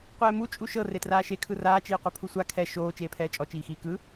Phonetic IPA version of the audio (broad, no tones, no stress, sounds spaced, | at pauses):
qʷ ɛː m u t͡ʃʼ u ʃ ɤ r e t r aː ʃ e kʰ ɯ r aː t͡ʃ iː qʷ ɛ pʰ u sʷ a kʰ ɛ ʃ oː t͡ʃ eː pʰ ɛː t͡ʃʼ ɔ t͡ʃ iː x iː k ɯ